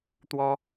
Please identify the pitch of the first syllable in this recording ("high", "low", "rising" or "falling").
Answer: high